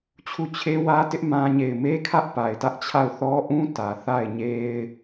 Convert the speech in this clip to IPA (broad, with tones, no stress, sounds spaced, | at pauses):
t͡ɕʰ u˦˨ t͡ɕʰ e˦ w ä˦ t ɪ˦ ʔ m ã˦ ɲ e˦˨ ɪ̯ m e˦ kʰ ä˦ ʔ p a˨ ɪ̯ t ä˦ ʔ t͡ɕʰ a˦˨ ʊ̯ θ ɔ˦ ʔ ũ˦ t ä˨ θ a˦˨ ɪ̯ ɲ e˦ ɪ̯